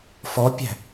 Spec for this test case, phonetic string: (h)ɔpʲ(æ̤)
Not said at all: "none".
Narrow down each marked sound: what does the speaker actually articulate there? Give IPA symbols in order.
f, æ̤

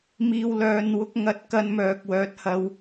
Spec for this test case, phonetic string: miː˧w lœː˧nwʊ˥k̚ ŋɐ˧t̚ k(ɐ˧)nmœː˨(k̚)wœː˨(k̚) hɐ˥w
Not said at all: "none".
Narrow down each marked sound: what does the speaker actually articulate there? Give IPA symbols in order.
ɐ˧, k̚, t̚

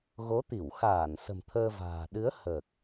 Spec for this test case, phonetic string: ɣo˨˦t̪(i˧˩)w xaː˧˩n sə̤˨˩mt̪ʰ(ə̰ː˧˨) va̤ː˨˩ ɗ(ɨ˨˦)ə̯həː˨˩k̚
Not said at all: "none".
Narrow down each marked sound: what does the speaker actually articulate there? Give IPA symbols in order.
i˧˩, əː˧, ɨ˨˦

